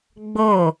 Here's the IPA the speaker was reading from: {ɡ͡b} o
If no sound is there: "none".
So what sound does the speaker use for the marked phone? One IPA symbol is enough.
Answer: ɡ͡b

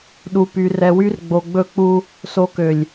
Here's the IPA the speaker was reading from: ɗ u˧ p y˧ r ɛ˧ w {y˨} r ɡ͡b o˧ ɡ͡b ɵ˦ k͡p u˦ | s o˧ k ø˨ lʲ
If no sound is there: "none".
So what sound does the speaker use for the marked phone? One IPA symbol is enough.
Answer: y˦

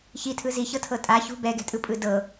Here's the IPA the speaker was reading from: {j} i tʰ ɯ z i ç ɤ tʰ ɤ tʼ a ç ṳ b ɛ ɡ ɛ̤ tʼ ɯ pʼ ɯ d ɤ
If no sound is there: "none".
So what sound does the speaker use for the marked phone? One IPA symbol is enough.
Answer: ç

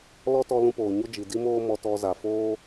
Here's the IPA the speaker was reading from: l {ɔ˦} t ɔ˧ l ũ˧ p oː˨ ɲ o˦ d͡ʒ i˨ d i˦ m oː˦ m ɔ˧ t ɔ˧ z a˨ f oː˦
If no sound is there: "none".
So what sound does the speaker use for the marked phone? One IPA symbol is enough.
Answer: ɔ˦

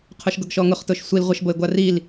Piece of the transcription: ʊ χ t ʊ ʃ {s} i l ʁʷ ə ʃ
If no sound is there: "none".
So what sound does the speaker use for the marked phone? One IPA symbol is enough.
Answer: sʷ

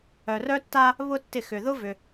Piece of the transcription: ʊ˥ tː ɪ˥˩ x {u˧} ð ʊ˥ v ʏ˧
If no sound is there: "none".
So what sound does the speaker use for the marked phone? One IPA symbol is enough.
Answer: ʏ˧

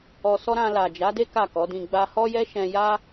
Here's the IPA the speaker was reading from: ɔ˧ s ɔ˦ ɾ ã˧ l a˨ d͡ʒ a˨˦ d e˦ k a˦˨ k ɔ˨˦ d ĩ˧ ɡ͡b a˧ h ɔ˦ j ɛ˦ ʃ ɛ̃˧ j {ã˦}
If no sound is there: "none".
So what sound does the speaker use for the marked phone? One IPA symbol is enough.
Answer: a˦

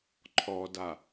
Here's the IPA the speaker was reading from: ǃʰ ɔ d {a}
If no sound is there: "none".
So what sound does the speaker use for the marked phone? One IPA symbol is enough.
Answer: a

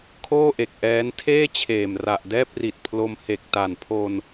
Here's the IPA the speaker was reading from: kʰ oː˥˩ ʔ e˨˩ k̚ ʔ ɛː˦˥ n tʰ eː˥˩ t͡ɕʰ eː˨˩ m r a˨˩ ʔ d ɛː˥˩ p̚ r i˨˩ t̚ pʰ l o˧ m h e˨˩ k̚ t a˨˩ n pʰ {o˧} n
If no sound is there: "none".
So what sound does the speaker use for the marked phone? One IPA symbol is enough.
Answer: o˧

